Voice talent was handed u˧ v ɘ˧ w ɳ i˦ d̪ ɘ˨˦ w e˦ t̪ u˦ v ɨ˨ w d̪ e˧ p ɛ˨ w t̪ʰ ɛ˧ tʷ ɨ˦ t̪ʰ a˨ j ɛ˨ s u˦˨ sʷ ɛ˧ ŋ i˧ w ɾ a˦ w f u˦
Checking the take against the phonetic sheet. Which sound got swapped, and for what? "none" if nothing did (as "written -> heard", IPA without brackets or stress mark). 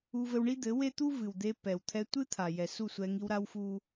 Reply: none